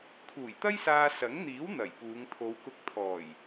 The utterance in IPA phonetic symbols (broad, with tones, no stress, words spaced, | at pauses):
kʰuː˨˩jt̪ɐ˥jsaː˧ sɐ˨˥ŋn̪iː˨˥w n̪ɐ˨˩jpuː˨˧ŋ t̪ʰo˨˧wkʊ˧k̚ t̪ʰɔː˨˩j